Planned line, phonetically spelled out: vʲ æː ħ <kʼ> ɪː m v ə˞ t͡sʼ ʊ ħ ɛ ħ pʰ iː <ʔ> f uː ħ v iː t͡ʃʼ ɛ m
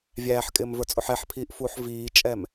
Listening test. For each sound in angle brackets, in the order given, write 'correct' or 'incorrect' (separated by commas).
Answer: correct, correct